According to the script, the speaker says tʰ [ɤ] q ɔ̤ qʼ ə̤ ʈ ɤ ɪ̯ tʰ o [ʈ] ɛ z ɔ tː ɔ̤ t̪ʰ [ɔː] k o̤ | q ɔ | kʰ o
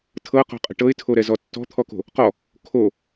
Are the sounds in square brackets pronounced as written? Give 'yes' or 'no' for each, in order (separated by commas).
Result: yes, no, no